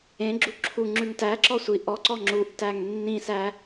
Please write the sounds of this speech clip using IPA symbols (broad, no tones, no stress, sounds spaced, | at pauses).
ẽ ɡ͡ǁ u ǁʰ u ŋ͡ǁ ʉ ŋ t æ ǁ ɔ sʷ i ʔ ɔ ǀ ɔ ŋ͡ǁ u ʔ t æ ŋ nː ĩ s æ